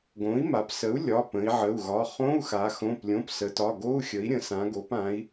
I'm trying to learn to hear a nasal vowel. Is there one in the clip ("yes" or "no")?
yes